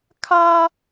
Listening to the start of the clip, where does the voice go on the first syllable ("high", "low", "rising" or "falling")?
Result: high